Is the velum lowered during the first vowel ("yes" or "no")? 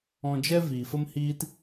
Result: yes